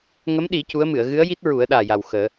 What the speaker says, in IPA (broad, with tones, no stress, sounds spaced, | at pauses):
ŋ ə˧˥ m ɗ i˨˩˦ c u˧˥ ə̯ m ɨ˨˩˨ ə̯ ɣ ɨ˧˥ ə̯ j i˦˥ t̚ ɹ u˨˩˦ ə̯ ɗ aː˨˩ j a˨˩ w x əː˨˩˦